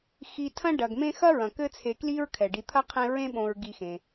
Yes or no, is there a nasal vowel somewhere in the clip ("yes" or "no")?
yes